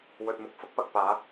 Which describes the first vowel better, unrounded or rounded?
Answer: rounded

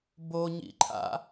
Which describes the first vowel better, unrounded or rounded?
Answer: rounded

